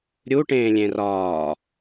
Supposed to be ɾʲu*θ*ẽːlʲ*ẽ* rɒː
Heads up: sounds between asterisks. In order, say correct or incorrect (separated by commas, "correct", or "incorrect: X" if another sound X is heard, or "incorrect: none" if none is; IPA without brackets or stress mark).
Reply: incorrect: ʈ, correct